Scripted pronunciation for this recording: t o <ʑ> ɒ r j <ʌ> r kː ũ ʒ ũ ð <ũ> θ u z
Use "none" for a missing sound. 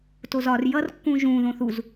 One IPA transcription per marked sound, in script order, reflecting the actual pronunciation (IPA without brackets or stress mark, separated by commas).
z, ʌ, õ